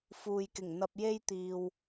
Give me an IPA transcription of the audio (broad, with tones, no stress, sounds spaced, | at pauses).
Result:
f uː˨ j k ɪ˨˩ ŋ n̪ ɐ˧ p̚ j e˥ j t̪ iː˨ w